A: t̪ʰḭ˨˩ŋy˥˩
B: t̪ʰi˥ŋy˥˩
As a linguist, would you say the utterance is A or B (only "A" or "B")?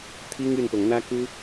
B